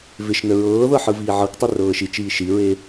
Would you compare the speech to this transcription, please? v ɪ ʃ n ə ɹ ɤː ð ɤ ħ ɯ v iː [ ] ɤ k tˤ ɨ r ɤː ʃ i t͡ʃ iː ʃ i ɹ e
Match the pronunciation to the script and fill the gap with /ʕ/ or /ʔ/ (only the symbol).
ʕ